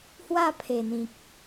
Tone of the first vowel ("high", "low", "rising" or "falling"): falling